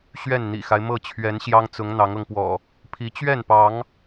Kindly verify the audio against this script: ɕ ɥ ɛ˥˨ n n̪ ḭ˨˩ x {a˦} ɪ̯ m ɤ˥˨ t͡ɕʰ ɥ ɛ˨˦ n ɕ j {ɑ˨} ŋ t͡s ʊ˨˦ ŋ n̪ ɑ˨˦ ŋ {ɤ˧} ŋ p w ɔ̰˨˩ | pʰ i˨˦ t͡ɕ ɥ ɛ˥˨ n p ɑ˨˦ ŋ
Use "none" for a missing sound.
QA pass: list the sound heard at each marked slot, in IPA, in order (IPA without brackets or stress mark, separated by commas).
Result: a˦, ɑ˦, ɤ˧